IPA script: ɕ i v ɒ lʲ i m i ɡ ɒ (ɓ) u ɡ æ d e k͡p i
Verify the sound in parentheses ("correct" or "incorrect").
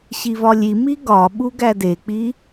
correct